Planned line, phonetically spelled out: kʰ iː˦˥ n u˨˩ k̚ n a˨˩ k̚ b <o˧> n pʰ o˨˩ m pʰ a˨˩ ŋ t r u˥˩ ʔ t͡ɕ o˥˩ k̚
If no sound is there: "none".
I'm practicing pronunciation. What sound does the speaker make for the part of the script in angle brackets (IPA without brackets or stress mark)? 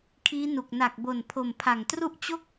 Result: o˨˩